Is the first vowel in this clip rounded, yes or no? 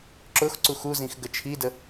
yes